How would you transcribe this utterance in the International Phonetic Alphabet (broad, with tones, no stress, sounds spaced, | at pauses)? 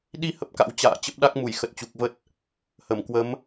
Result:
ɗ i˧ h ə˦˥ p̚ k a̰˧˥ w t͡ɕ a̰ː˧˨ t͡ɕ ə˦˥ p̚ ɗ a˦˥ k̚ m u˧˩ j x ə˨˩ t̚ t͡ɕ u˨˩ k̚ v ə˦˥ t̚ | h ə˧˩ m k w ə˨˦ m